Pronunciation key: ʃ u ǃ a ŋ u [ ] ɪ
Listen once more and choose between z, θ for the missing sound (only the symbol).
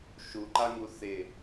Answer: θ